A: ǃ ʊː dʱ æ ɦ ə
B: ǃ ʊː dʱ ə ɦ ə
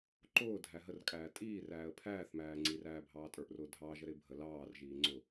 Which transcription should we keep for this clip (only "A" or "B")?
A